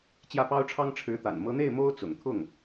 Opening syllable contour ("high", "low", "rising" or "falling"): falling